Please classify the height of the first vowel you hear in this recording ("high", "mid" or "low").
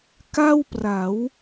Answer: low